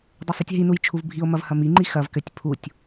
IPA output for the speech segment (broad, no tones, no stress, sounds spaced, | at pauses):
dˤ ɐ sˤ ɨ tʲ ɦ i n u j t͡ʃʰ u v bʱ i o̯ m ɐ v h ɐ m i ŋ͡ǃ i x ɐ v k ɘ tʲ pʰ u tʲ